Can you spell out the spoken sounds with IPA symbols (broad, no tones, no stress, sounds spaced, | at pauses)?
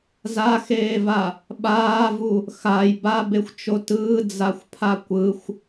z a x eː v a | ɓ aː v u | x a j b a b e xʷ t͡ʃ o t ɯː d͡z a xʷ pʰ a kʷ ɯ xʷ